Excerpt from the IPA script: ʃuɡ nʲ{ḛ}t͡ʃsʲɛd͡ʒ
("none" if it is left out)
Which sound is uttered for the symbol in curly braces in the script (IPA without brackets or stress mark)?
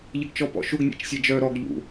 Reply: ḛ